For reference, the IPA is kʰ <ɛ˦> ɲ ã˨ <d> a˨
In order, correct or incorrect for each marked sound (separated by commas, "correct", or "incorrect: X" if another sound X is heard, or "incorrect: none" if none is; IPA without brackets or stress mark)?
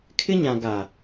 incorrect: ɪ˦, incorrect: ɡ